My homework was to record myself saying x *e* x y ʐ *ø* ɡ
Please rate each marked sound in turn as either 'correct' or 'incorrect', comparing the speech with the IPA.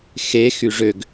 correct, correct

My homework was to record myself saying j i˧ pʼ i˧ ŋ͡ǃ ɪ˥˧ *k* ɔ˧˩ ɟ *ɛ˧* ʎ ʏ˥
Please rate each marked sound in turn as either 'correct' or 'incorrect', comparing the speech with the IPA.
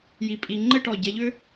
incorrect, correct

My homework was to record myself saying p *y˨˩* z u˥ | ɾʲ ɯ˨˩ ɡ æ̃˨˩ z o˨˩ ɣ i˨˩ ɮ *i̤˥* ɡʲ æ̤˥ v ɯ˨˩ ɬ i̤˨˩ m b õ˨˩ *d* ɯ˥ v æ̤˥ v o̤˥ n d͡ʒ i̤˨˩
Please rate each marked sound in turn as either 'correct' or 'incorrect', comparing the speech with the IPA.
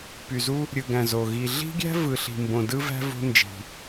correct, correct, correct

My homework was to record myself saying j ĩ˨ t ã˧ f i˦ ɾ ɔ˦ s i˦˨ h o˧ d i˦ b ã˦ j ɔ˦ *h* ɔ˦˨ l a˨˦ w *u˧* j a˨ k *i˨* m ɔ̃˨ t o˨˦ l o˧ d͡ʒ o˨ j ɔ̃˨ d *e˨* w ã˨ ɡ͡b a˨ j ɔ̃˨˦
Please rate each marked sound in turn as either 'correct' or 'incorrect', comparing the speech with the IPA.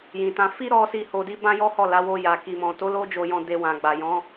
correct, incorrect, correct, incorrect

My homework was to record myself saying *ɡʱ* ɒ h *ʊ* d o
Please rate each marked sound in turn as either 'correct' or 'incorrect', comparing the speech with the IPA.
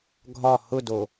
correct, correct

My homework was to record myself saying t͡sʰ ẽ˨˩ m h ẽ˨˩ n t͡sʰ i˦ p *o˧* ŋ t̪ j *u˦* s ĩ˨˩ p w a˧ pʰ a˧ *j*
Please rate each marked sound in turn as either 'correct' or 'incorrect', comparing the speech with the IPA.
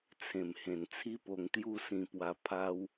correct, incorrect, incorrect

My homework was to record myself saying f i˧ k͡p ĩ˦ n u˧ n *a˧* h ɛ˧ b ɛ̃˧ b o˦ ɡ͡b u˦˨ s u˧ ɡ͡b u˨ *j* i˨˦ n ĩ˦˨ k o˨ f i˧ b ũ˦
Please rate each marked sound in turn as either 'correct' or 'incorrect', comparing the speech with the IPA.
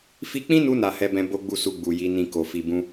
incorrect, correct

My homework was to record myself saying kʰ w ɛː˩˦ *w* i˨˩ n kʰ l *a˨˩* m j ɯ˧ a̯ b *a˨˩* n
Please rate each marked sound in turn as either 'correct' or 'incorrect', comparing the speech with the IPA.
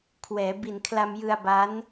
incorrect, incorrect, incorrect

